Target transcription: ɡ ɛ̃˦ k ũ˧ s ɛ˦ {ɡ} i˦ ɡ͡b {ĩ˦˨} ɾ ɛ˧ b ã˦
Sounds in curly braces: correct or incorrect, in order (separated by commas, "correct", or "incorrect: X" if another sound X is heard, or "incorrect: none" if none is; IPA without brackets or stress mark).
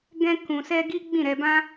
correct, correct